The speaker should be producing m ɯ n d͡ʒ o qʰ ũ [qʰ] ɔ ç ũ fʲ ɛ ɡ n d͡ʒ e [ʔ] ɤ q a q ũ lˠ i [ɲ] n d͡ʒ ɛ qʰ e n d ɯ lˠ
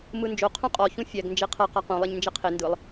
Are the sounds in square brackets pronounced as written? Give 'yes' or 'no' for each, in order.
no, no, yes

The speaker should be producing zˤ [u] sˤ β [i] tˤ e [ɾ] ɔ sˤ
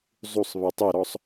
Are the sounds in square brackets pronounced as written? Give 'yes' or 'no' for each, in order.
yes, yes, yes

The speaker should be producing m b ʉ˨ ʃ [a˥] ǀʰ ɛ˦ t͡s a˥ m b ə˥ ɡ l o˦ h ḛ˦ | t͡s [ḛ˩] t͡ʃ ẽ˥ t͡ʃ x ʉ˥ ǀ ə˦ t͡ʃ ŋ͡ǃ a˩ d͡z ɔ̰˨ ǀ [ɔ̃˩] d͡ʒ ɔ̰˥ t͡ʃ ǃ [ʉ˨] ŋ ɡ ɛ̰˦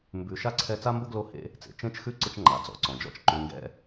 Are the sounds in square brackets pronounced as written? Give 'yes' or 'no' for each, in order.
yes, yes, yes, yes

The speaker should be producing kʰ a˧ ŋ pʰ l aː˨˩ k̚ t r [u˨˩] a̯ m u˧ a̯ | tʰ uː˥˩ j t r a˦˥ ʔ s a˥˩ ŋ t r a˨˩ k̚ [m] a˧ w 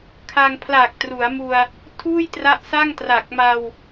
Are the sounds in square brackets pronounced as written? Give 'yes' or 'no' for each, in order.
no, yes

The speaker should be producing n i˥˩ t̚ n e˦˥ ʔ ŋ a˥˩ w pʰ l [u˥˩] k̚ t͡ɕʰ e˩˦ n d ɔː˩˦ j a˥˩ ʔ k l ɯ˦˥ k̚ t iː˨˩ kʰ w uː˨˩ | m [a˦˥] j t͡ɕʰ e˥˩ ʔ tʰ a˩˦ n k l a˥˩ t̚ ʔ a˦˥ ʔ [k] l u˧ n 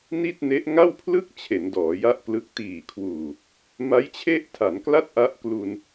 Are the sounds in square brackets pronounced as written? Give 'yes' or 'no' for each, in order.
no, yes, yes

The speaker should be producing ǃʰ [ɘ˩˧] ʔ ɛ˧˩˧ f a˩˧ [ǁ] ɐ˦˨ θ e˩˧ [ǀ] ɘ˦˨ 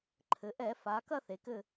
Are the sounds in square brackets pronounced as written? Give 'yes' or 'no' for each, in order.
yes, no, no

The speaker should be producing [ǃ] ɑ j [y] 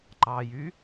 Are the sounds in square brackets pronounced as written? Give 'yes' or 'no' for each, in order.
yes, yes

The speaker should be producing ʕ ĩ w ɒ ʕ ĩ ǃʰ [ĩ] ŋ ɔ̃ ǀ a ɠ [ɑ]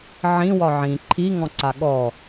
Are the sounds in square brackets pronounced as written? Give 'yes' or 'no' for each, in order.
no, no

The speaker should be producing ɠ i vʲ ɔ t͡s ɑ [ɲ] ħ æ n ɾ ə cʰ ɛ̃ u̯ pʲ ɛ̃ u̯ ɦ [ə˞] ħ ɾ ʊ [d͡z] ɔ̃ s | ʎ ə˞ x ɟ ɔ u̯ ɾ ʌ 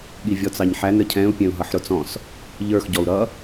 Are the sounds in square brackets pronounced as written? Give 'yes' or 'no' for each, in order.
yes, no, no

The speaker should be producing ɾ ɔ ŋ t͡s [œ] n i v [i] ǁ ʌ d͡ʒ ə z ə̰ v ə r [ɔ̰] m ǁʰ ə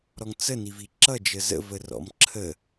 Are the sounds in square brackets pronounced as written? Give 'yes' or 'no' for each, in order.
no, yes, yes

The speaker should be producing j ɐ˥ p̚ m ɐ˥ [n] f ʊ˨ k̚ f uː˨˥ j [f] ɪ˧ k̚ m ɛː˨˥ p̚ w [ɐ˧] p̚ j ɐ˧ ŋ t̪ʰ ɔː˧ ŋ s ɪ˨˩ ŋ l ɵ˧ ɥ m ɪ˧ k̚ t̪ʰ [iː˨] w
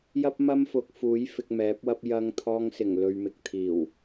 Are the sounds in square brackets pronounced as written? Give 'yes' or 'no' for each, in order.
no, yes, no, no

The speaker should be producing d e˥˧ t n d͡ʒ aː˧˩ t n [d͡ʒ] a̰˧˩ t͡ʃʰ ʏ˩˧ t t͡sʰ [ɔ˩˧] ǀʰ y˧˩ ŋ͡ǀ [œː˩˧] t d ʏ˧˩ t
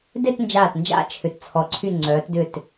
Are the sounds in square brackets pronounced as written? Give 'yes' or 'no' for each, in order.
yes, yes, yes

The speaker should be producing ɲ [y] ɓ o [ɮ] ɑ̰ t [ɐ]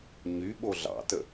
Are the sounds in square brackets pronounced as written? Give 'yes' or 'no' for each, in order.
yes, yes, no

